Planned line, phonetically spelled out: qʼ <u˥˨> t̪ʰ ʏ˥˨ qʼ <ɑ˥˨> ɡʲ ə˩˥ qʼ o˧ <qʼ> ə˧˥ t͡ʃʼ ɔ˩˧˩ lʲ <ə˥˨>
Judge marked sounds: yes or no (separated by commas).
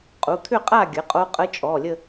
no, no, yes, yes